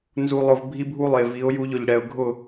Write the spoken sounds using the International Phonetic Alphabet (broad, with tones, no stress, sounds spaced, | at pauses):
n z u˨ lˠ ʊ˨ v bʱ i˦ bʱ u˦ lˠ e˨ v i˨˦ ʊ̯ j u˦ ʎ ʊ˨ ʎ ɽ ɛ˨ ʊ̯ ɡʱ ʊ˦˨